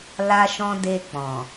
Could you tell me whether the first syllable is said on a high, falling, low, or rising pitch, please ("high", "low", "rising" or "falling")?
high